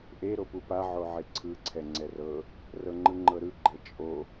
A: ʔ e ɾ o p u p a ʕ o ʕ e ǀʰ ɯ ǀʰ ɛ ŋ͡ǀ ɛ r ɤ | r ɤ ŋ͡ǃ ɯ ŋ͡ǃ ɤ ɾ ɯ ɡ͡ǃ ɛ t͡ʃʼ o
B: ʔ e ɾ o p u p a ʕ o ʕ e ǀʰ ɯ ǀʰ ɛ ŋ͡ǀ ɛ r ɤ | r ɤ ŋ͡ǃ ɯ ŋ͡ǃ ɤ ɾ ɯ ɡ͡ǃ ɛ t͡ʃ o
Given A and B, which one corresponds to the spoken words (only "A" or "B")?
A